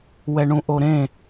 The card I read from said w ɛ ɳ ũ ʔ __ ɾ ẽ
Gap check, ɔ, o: o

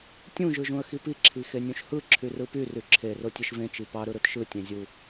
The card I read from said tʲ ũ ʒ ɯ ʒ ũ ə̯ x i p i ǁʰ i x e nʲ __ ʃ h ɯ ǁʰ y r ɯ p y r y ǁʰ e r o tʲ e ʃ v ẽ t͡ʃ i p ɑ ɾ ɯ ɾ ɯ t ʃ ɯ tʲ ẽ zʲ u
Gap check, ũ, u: ũ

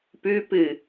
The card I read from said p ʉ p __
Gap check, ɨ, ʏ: ɨ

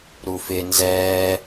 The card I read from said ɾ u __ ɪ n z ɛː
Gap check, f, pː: f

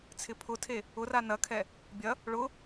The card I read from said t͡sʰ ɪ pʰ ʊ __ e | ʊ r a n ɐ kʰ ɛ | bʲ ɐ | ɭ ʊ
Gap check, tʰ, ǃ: tʰ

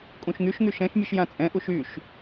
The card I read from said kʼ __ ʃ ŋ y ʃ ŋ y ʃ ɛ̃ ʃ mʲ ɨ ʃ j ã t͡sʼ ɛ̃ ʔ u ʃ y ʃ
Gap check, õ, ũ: ũ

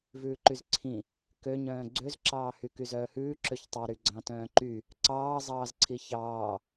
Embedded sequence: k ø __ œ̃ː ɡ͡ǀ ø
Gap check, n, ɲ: ɲ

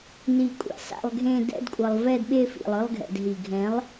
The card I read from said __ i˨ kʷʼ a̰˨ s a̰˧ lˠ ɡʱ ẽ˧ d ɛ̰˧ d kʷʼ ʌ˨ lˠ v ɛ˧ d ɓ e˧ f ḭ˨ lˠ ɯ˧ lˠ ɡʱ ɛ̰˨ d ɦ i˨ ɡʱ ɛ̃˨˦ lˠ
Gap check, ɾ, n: n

